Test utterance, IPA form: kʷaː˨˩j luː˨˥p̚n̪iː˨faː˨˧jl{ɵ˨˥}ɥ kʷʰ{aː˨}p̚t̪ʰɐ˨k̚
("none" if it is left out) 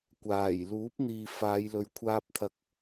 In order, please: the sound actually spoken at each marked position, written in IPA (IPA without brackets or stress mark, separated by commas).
ɵ˨˧, aː˧